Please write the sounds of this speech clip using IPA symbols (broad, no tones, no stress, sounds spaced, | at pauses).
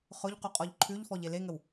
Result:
χ ʊ ʎ q u qʼ ɔ ʎ ǃʰ ʉ ʎ f ɔ ʎ e l e ŋ ə w